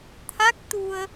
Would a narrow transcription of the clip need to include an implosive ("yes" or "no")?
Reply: no